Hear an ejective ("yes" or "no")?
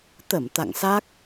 no